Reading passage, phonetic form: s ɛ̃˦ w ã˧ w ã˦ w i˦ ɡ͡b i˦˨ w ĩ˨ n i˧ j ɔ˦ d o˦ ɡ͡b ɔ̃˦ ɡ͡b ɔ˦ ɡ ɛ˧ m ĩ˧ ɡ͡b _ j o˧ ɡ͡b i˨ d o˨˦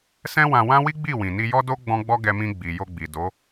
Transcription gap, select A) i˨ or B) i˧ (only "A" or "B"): A